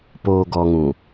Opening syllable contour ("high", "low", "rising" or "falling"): low